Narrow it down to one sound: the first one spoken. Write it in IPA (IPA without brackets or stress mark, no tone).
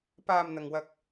p